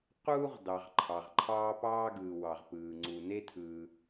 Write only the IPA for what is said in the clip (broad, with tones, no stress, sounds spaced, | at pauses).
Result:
q uː˥ ʁ d ɑ˩ ʁ ǃʰ ɑ˩ ʁ ǃʰ ɑː˥ p ɑː˥ ɡ ɯː˩ w ɑ˩ ʁ p ɯː˩ ŋ͡ǀ u˩ n e˥ tʰ ɯː˩